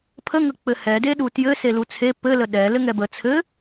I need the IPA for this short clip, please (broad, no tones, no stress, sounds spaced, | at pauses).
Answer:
pʰ ə ŋ ə k͡p ɘ h ɛ d e ɗ u t j ɘ s e l u t͡sʰ e p ɘ l ə ɗ ɛ l ɘ ŋ ɛ b ə t͡sʰ ɘ